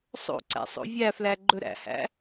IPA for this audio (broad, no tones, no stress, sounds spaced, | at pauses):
sˤ o̰ ǀ æ̰ sˤ o̰ vʲ æ f l æ ɡ͡ǃ ɵ ɾ æ̰ h æ̰